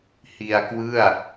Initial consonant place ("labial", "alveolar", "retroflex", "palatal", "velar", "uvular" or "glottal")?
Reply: glottal